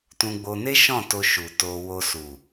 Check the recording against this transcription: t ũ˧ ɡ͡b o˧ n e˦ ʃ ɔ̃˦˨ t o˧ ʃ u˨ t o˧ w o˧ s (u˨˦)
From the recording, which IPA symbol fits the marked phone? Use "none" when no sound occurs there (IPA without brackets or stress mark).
u˨